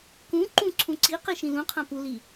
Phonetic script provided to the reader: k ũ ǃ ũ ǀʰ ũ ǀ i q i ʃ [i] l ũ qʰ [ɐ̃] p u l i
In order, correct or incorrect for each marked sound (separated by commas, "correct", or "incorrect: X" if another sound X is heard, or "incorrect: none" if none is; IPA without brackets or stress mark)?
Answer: incorrect: ĩ, incorrect: ã